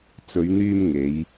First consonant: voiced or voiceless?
voiceless